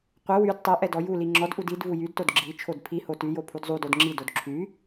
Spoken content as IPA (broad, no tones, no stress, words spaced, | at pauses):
qʷɘ wyd tˤɛ ʔɛdɔjuli ŋ͡ǁɔdʔud id vujydtod ɡ͡ǁi t͡ʃʰodpʰiho tyjo pʰudzˤudod ŋ͡ǁidod ǁʰy